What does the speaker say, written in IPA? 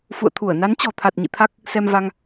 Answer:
f ṵ˧˨ ə̯ t̪ʰ u˧˩ ə̯ n a˨˦ n t͡ɕ ɔ̤˨˩ t̪ʰ a˨˩ t̚ ɲ ḭ˧˨ t̪ʰ a˦˥ k̚ | s ɛ˧ m v a˧ ŋ

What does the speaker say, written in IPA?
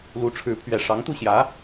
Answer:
l u˧˥ ʈ͡ʂʰ ɻ̩˧˥ pʰ ɥ ɛ˨˩ ʂ ɑ˧˥ ŋ t̪ u˥˩ ɕ j ä˧˥

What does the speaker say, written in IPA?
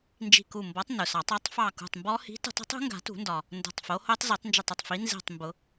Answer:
n d͡ʒ i̤˧˩ k u˧˩ m b ɔ˨˥ tˤ n ʊ˩ s ɑ˨˩˦ tˤ ɔ˦˥ tˤ f ɑ˧˩ k ṳ˧˩ tˤ m b ɔ˦˥ h i̤˨˥ t ṳ˨˩˦ tˤ i̤˦˥ tˤ ṳ˦˥ ŋ ɡ a̤˨˩˦ t ṳ˨˩˦ n d ɒ˩ | n d o̤˧˩ tˤ f o˨˥ h o˦˥ tˤ z i˨˩˦ tˤ n d͡ʒ ə˧˩ tˤ ʊ˧˩ tˤ f i˨˥ n z i̤˧˩ tˤ m b ʊ˨˩˦

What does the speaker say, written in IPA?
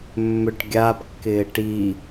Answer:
mː ʏ ʈ ɡʲ a b kː ɪː ʈ i

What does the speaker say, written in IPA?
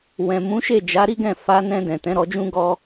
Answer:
w ɛ̃˨ m ũ˨˦ ʃ e˦˨ d͡ʒ a˨˦ ɾ i˦ ɡ ɛ̃˦˨ f a˧ n ɛ̃˧ d ɛ̃˨ t ɛ̃˨˦ ɾ ɔ˧ d͡ʒ ũ˦ ɡ ɔ˦

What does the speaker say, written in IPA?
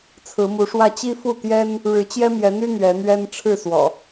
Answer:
t͡sʰ ɹ̩˨˦ m u˨˦ ʂ w ä˥˨ t͡ɕ i˦ f u˥˨ t̪ j ɛ˦ n | ɻ ɻ̩˨˦ t͡ɕ j ɛ˦ m j ɛ˨˦ n̪ y˦ n̪ ɥ ɛ˨˦ n̪ ɥ ɛ˦ n ʈ͡ʂʰ ɻ̩˥˨ s w ɔ̰˨˩

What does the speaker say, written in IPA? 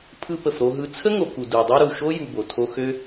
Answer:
pʰ ɯ˧ p ə˨ f ɾ o˧ ɦ ɯ˧ t͡sʰ ə˦ ŋ o˨ k u˨ d u˨ dˤ ɤ˦ ɾ u˨ ʃ o˦ j u˧ b o˨ tʰ o˦ x ø˦

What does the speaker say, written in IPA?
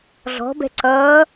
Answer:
ɮ ɔ̤ b ɛ̤ ǀ ʌː

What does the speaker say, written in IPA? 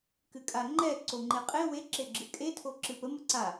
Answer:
k ɨ kʼ a ŋ͡ǃ ɛ ǀ o ŋ͡ǃ e qʼ e w e ǁ e ɡ͡ǁ ɨ kʼ e tʰ o ǁ ɨ p ə m ə ǀ a

